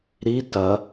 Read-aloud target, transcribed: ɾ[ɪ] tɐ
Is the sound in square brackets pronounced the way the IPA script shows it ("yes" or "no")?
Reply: no